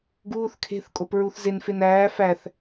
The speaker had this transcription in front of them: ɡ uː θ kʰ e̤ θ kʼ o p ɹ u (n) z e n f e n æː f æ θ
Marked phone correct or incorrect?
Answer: incorrect